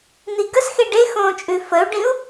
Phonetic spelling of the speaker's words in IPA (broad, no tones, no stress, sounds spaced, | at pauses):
n̪ i ɡ ə s x e ɖ e x õː t͡ʃʼ ʉ f ə u̯ ɖ ĩ u̯